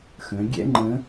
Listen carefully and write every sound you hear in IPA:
xə̃˩˧ ɡʲɛ̰˥ŋ͡ǃə̃˧˥

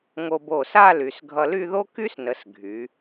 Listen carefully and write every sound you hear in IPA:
ŋo˧bo˧˩sa˥˧ ly˩˧sɡʱʌ˧ly˥˧ðo˥ ky˥snə˩˧s ɡʱy˩˧

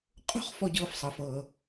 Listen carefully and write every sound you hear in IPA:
qʼo̤˥χ fɔ˥ɟɤː˥fsˤɤ˧fɤː˧

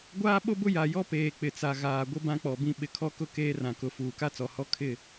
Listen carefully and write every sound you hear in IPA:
ɡʷaː˦ɓo˦bʊ˦ ja˨jɔ˦ peː˨k͡pɪ˨t͡sa˨ ɣaː˨ɡʷɪ˦ bã˦k͡pɔ˨bĩ˦ ɓɪ˨kʰɔ˦kʊ˦ keː˦rã˨kʊ˨ fuː˨ka˦t͡sɔ˨hɔ˦ kʰɪ˦˨

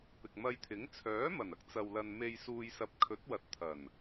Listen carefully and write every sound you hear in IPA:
pɪ˨k̚mɐ˧jt̪ʰɪ˨˥ŋ t͡sʰœː˨˥mɐ˨˩nɐ˥k̚ t͡sɐ˨wlɐ˨n me˨jsuː˨jsɐ˨˥p̚ kʰɵ˨˥t̚wɐ˨t̚t̪ʰɐ˨˩n

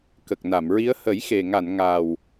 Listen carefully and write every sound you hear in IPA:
kə˨˩k̚na˨˩˨mɹi˧˥ə̯ hə˨˩˦jxe˨˩ŋa˨˩˨n ŋa˨˩w

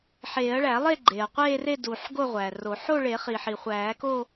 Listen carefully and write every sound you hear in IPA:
ħeː˨˩˦ɐ̯ ɭæ˨˩˦lˠe˥˧ ɡ͡ǃeː˩ɐ̯qʷeː˥˧re˥˧ du˩ħ ɡo˥˧ʁʷæː˩ro˨˩˦ ħo˥˧ɭe˨˩˦χi˩ħi˩ χʷæː˨˩˦ko˥˧

